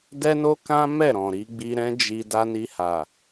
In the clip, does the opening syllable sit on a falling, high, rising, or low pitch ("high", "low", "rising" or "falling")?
high